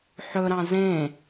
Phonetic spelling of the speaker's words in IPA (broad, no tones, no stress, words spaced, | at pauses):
ħɵɾɑ̃ zẽ